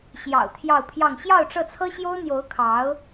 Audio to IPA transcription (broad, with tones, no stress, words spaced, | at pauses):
ɕjɑ̰˨˩ʊ̯ t̪ʰjɑ˥˧ʊ̯pʰjɑ˥˧ŋ ɕjɑ˥˧ʊ̯ ʈ͡ʂɤ˥˩t͡sʰɤ˥ɕjo˥ʊ̯n̪jo˧˥ʊ̯ kʰɑ˧˥ʊ̯